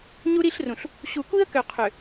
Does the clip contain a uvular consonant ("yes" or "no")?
yes